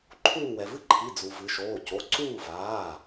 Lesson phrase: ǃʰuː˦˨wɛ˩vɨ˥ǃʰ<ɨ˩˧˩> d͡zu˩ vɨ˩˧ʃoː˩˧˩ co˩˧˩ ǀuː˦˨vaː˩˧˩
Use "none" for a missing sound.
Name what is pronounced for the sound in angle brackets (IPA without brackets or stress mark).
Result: i˩˧˩